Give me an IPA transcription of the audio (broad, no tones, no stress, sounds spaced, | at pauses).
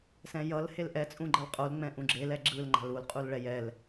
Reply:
s ɛ̃ j ʌ l h e l ʔ ɛ t͡sʼ ũ ɡ͡ǃ ʌ l qʼ o l ŋ͡m ɛ̃ ʔ ũ ɡ͡ǁ e l ɛ ɡ͡ǁ ɯ l ŋ͡ǃ a̤ l u l qʼ u l ɭ ɛ j ɛ l